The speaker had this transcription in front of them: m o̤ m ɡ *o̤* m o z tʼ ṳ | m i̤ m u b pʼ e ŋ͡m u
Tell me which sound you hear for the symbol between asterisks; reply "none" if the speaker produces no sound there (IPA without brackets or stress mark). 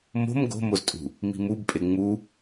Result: o̤